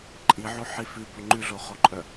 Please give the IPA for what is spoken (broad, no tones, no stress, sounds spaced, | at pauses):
ǃʼ i ʕ o ħ i f ʉ b o ŋ͡ǃ ʉ ɮ o χ o ǃʼ œ